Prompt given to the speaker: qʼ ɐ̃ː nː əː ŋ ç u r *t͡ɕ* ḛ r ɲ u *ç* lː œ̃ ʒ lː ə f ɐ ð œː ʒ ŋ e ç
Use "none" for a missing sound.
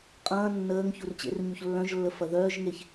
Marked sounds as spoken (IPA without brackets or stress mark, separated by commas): t͡ɕ, ç